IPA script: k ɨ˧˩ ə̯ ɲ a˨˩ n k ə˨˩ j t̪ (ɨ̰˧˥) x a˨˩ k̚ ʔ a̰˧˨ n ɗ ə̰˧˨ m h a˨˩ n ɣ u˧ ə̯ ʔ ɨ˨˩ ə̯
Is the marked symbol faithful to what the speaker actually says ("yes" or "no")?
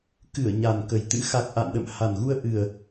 yes